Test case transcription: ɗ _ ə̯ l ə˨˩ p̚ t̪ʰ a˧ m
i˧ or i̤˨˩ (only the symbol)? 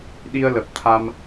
i˧